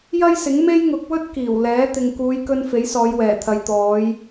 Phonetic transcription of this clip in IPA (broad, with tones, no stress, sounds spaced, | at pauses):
j ɐ˥ j s ɪ˨˥ ŋ m e˥ j ŋ ʊ˨˥ k̚ w ɵ˥ t̚ k iː˨˩ w l ɛː˨˥ t̪ ɪ˨ ŋ k uː˨˧ j k ɵ˧ n f e˨˥ j s ɔː˨˧ j w ɛː˨˩ t̪ʰ ɐ˨ j t̪ ɔː˨˧ j